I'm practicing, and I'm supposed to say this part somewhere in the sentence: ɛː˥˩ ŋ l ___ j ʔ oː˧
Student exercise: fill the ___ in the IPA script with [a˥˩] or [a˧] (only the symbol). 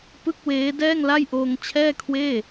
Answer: a˥˩